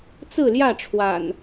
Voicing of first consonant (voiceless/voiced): voiceless